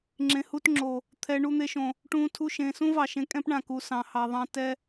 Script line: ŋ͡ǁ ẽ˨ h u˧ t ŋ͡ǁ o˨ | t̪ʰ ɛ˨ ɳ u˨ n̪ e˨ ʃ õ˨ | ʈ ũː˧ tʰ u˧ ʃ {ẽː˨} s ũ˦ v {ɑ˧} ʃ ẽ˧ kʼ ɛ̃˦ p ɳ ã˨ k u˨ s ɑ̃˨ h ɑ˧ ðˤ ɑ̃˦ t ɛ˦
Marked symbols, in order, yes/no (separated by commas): yes, no